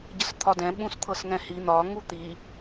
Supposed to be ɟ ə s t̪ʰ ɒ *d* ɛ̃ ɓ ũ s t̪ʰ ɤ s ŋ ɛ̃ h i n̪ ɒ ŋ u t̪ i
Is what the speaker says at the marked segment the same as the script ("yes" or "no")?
yes